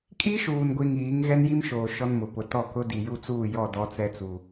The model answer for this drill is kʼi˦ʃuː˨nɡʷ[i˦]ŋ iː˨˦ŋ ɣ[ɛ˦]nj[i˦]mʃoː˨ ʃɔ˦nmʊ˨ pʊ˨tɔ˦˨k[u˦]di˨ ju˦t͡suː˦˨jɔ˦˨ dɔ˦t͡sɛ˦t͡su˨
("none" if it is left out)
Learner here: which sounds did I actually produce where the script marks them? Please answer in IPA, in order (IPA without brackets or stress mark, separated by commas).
i˨, ɛ˦, i˦, ʊ˦